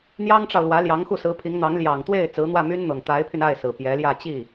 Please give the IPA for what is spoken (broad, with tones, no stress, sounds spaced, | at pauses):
n̪ j ɑ˥ ŋ ʈ͡ʂ ɑ˨ ʊ̯ l w ä˧˥ l j ɑ˧˥ ŋ x u˥˩ s ɹ̩˧˥ pʰ i˧˥ ŋ n̪ ɑ˧˥ ŋ l j ɑ˨˩ ŋ t̪ w e˥˩ ɪ̯ t͡s ɹ̩˧˥ n̪ w ä˥˩ m y˥ n n̪ ɤ˨˩ ŋ t̪ a˧˥ ɪ̯ pʰ y˧ n a˥˩ ɪ̯ s ɹ̩˨˩ p j ɛ˧˥ l j ä˥˧ t͡ɕ i˥˩